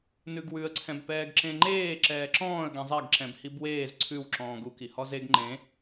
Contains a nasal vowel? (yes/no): yes